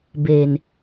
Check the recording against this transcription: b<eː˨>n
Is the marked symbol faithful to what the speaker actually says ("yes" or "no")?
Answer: yes